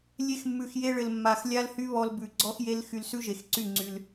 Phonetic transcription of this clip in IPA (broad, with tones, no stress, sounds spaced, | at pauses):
lʲ e˧ x mː ʉ˨ x j e˧ ɭ ɘ˨ l mː a˨ x lʲ a˦ l h y˦ β ɔ˧ l b ʉ˨ ɡ͡ǀ ɔ˦ x j e˦ l x y˧ l s ʉ˦ ʒ e˨ x ǀ y˦˨ ŋ͡ǀ y˧ l